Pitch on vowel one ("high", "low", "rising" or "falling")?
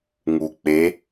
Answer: low